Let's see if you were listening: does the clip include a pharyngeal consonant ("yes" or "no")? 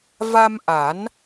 no